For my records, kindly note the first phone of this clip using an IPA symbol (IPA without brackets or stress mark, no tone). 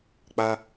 k͡p